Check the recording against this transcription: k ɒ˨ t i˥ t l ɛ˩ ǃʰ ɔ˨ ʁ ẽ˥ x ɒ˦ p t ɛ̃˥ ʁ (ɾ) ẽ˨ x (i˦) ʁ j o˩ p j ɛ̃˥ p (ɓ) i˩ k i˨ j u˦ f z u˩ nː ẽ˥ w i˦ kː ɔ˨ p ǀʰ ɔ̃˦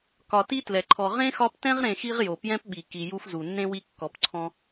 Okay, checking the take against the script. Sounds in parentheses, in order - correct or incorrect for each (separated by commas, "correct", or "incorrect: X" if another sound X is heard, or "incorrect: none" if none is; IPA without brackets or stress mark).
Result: correct, correct, correct